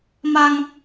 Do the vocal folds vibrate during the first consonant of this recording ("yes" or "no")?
yes